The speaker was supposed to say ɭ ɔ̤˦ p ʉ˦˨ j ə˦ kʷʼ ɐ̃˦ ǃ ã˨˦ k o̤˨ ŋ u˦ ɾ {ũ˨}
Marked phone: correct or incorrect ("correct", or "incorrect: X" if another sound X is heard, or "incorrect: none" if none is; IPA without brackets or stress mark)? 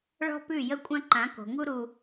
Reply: incorrect: u˨